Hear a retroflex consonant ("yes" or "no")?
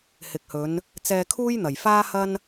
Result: no